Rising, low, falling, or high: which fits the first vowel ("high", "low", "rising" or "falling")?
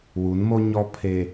rising